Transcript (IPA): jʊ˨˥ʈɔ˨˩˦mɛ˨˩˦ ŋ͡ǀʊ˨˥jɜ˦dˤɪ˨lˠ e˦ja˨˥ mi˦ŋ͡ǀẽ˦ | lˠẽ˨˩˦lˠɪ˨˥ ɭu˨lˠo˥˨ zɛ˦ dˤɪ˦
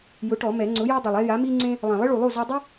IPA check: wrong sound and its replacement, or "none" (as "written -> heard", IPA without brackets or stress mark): ɜ˦ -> ɛ˦